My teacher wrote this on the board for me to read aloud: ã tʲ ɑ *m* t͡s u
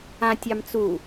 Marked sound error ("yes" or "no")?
no